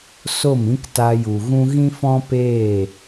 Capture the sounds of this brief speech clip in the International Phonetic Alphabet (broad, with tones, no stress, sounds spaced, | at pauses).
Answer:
s o˦˨ m ĩ˦ k t a˧ j u˨ ɣ ũ˦ ɣ ĩ˦ f ɔ̃˦ p eː˦˨